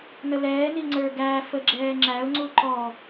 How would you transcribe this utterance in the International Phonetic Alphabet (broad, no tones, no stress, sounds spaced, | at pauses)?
n ə l ɛː n i ŋ͡ǀ ə˞ ɡ æ f ə ɡ͡ǁ ɛː ŋ͡ǁ æ ʊ̯ ŋ͡ǀ u ǃ ɔ